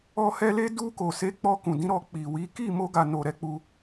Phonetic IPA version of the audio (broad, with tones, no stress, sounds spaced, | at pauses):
ɔ˧ h ɛ˧ l e˧ d u˧ k o˨ s e˨˦ k͡p ɔ˧ k ũ˨ d ĩ˨˦ ɾ ɔ˧ k͡p i˨ w i˨˦ k i˦˨ m o˧ ɡ a˨ n o˨ ɾ ɛ˧ k͡p u˧